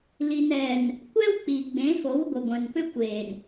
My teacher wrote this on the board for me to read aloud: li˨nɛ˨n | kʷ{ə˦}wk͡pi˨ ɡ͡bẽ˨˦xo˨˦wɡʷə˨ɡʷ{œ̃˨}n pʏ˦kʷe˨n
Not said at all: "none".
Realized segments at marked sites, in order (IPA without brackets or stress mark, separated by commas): ɛ˦, œ̃˨